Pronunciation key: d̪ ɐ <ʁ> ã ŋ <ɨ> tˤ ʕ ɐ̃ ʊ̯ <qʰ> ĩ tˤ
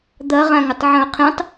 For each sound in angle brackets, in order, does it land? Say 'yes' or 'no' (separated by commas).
yes, yes, yes